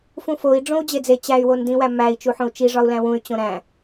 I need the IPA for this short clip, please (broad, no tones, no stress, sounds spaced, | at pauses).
f ũ f o i̯ ɖ͡ʐ õ u̯ d͡ʑ e d͡z e t͡ɕ æ y̯ w o n d ĩ w æ m æ i̯ t͡ʃ u ħ õ u̯ t͡ʃ i ʐ ɒ u̯ l æ̃ w ũ y̯ t͡ɕ õ ɾ æ̃